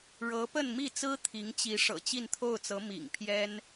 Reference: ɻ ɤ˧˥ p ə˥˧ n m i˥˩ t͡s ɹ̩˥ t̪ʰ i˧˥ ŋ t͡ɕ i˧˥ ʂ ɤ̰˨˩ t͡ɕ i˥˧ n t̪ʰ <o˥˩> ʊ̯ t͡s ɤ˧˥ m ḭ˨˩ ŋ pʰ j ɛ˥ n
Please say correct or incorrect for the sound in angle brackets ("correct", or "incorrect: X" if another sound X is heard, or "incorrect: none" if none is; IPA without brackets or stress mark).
correct